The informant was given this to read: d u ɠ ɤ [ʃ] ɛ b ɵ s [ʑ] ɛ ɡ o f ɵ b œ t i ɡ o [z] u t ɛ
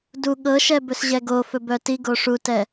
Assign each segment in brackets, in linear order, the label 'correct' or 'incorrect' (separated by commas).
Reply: correct, correct, incorrect